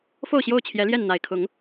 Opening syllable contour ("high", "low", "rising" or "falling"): falling